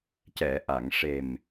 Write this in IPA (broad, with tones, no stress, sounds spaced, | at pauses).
c ɛ˨˩˨ ʔ a˨˩˨ ŋ ʂ e˨˩ m